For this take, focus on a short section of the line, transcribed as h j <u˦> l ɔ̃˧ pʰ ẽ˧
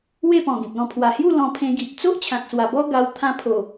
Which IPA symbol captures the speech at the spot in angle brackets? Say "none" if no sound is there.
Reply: u˥˧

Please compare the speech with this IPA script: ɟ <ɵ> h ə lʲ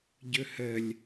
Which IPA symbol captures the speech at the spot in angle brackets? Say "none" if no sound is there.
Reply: ɵ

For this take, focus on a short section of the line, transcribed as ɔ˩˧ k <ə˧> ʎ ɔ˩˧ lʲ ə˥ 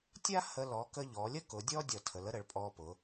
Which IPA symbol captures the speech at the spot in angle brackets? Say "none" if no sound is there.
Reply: ə˧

